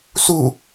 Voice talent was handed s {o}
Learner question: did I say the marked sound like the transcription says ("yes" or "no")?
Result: no